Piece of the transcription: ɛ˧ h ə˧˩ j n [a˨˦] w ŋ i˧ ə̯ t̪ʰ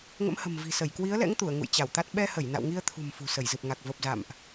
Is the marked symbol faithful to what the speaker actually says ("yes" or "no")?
no